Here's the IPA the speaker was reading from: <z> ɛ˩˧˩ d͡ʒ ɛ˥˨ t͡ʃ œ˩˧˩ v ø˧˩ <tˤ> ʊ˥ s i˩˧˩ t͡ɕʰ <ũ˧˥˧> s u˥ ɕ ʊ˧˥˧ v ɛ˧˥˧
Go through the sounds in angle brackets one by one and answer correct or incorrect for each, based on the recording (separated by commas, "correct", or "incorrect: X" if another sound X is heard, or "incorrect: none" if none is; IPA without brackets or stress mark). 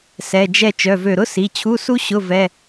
incorrect: s, incorrect: ɾ, incorrect: u˧˥˧